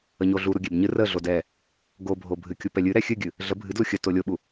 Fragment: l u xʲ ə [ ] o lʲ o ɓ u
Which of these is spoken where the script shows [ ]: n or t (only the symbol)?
t